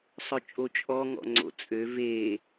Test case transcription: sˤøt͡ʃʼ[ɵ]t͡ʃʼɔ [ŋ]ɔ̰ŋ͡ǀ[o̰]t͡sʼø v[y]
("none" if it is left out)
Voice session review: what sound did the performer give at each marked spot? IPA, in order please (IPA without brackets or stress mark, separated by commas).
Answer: o, ŋ, o̰, e